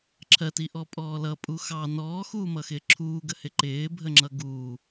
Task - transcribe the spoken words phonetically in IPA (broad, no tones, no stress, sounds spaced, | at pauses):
ǁʰ ɜ t i ʔ ɔ pʼ ɔː l ʌ pʼ u x ɑ n ɔː x uː m ʌ x ɪː ǁʰ uː ɡ ə h ɪ ǃ ɪː bʱ ə ŋ͡ǁ ʌ ɡ uː